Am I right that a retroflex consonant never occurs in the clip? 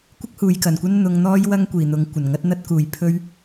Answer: yes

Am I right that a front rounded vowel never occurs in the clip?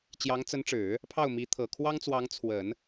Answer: yes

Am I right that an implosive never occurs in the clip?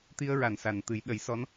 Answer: no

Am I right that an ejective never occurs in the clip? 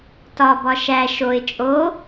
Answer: no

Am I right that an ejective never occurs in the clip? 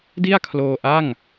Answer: yes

